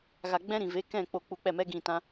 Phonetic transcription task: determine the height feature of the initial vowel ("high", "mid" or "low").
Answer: low